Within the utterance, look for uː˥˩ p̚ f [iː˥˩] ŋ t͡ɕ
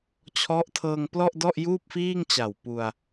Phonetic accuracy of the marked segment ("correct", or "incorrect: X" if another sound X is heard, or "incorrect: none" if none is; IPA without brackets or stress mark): correct